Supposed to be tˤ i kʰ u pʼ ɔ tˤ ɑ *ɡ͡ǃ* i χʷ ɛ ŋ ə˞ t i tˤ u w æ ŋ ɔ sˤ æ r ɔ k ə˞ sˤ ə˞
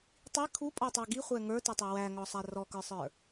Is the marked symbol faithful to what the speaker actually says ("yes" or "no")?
no